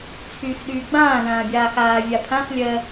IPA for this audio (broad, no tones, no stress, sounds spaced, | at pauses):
t͡sʰ yː x ɗ yː ɡ͡b ãː ð ãː bʲ aː x aː vʲ a pʰ ã x lʲ ɜ